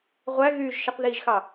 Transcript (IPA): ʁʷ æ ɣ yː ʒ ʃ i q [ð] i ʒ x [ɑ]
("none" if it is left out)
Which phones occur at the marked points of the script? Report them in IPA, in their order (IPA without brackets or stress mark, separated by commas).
ð, ɑ